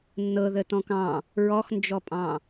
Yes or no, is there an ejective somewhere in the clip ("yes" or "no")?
yes